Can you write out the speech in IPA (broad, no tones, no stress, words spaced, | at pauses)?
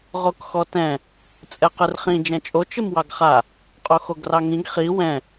ʁokxɔtɛ̃ | t͡sʼɛqɨrχĩ d͡ʒɛ̃t͡ʃʼo t͡ʃɨmwɑɡχa | qʼoxoɡrɑŋĩɡ χi wɛ̃